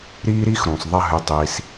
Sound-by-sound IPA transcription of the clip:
ɾ iː˦ ɾ i˦ x ɾ ũ˨ sˤ ðˤ ɐ˦ ɦ ʉ˧ tˤ iː˧ s

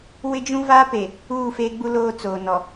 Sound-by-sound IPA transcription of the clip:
w ɪ˦ d͡ʒ ũ˦ v a˦ p e˨ | uː˦˨ f e˦ ɡ͡b u˦ l oː˦ t͡s oː˨ n ɔ˨

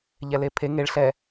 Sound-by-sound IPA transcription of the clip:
ʎ ɛ l e pʰ e ŋ e ɭ ɬ ɛ

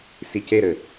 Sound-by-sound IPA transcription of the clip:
s i c e ɾ ɘ

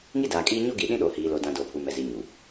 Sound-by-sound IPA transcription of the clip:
ŋ i˦ d aː˨ kʼ iː˦ ɲ o˦ ɡ i˨ ɗ ĩ˦ ɗ o˨ h iː˨ l o˨ d ã˨ d oː˨ pʰ u˨ m ɛ˨ z i˨ ɲ u˨

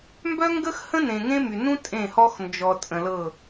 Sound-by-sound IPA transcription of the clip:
m b œ˦ ŋ ɡ ə˦ x h ə̃˦ n ẽ˨ ŋ ẽ˦ m y˨ n ũ˦ tʼ ẽ˦˨ h ɔ˦ x n d͡ʒ ɔ˨ tʼ ə̃˨ l ɤ˦˨

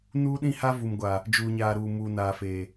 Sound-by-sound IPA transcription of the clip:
n uː˦ ɗ ĩ˦ h a˦ v u˨ m ɡʷ a˨ | d͡ʒ uː˨ ɲ aː˨ ɾ uː˨ m uː˨ n aː˨ f eː˨

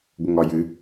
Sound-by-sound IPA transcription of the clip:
ɡʷ ə ŋ ɒ j ɨ

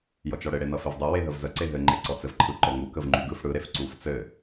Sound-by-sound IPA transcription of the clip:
j ɔ t͡ʃ ɔ ɽ ɘ ɽ e n ʌ f e v dˤ ɯ w e ɦ ə v z ə ǀ e ɦ ɘ ŋ͡ǃ e ǀ ɔ t͡s ɘ v ǃʰ ɯ ǃ ɔ ŋ u k ə v ŋ͡ǃ y ɡ ɯ f ɽ ɯ ɾ e f ǀ u f t͡s ɘ

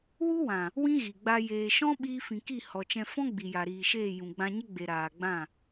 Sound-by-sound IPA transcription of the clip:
w u˦ w ã˨ | w ĩ˦ ɣ i˨ ɡ͡b a˧ j eː˨ ʃ ɔ̃˦ ɓ iː˧ f ĩ˨ k i˦˨ h ɔ˨ t͡ʃ ɛ̃˧ f ɔ̃˦ ɡ͡b i˨ j a˨ ɾ iː˨ ʃ eː˦˨ j ũ˨ ɡ͡b ã˧ ɲ ə˦ ɡ͡b e˨ ɾ aː˨ ɡ͡b ã˦˨

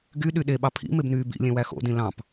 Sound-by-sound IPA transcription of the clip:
ɡ y ɗ y ɗ e ɓ ɑ pʰ ḭ m e b n yː b ḭ lʲ ẽ w æ x o̰ d ĩ l ɑ̃ p

